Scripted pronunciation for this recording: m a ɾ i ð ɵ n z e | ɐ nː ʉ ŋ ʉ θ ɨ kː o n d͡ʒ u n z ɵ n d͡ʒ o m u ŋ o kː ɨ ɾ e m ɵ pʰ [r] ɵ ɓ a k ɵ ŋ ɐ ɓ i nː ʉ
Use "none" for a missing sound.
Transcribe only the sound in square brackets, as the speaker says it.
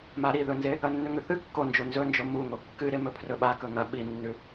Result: r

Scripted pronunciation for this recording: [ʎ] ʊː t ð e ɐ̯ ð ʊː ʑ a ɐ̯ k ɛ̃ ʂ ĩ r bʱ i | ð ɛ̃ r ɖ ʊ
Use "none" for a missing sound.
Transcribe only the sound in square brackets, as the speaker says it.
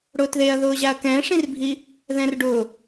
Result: ɽ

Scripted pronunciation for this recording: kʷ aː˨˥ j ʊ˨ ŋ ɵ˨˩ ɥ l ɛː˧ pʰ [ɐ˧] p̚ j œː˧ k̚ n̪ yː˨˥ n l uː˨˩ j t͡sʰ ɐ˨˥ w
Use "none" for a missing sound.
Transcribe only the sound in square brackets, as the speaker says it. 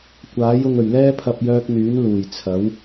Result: ɐ˧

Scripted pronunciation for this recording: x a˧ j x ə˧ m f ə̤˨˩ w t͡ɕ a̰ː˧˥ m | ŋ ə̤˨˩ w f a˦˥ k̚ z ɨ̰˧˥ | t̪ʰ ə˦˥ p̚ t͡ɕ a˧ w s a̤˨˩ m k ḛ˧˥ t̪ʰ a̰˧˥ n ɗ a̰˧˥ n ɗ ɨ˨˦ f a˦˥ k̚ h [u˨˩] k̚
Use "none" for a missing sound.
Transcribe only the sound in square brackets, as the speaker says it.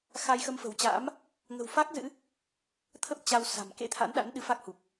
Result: u˨˩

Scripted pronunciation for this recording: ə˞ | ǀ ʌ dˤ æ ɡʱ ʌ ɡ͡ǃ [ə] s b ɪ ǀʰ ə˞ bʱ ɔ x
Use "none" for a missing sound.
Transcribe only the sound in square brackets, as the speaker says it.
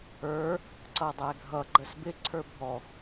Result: ə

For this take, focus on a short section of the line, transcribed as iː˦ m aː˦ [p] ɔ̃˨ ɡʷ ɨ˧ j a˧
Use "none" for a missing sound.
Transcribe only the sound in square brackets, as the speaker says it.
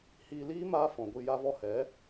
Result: f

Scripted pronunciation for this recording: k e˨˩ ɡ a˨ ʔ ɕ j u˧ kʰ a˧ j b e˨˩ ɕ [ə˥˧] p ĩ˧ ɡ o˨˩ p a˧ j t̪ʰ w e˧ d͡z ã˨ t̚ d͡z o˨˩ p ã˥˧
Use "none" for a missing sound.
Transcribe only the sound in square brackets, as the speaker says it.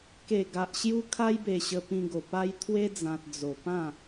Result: ə˧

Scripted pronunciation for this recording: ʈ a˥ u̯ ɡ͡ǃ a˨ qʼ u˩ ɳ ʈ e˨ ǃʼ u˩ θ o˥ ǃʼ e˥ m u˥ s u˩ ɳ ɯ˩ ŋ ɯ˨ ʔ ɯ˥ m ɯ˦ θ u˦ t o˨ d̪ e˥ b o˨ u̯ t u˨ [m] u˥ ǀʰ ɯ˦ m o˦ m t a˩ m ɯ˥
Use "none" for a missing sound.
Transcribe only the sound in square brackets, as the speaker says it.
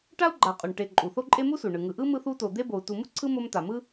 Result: m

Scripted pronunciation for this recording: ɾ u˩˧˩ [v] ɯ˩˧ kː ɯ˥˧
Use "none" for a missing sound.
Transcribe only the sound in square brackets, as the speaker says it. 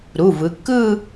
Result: v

